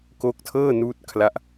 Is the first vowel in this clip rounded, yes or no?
yes